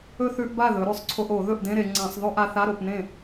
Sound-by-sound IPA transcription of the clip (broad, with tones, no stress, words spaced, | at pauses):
ɵ˥˧θʉ˧˥˧ʔba˥˩ ðɵ˩˧ ɾʉ˩˧sˤǀʰo˧ʔ o˧˩˧ ðɵ˥˩ʔdẽ˧˥˧ ɾe˩˧ ŋ͡ǀã˧˩˧sˤðˤɵ˥˧ʔa˧ θa˧˥˧ɾo˥˩pnẽ˥˩